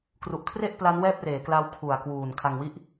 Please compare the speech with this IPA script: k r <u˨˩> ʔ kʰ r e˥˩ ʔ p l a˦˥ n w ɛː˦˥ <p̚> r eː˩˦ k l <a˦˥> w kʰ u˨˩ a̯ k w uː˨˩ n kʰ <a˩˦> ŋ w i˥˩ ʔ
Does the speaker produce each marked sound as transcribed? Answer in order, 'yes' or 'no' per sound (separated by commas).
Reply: yes, yes, yes, no